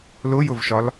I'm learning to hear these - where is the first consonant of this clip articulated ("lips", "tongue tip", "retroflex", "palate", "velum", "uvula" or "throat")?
tongue tip